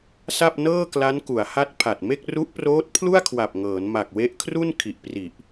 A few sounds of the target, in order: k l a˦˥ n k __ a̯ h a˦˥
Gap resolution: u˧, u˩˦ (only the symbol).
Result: u˩˦